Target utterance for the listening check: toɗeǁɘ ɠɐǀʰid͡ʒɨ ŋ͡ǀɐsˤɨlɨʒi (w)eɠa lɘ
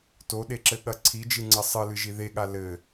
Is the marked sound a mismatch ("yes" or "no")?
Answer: yes